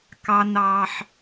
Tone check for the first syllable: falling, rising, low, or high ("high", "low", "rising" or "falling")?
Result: high